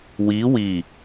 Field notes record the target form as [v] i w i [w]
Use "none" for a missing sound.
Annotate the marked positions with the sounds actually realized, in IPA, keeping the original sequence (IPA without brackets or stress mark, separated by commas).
w, none